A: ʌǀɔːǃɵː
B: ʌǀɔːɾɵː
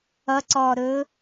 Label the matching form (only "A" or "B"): B